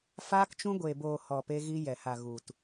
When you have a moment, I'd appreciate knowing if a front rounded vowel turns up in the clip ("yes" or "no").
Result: no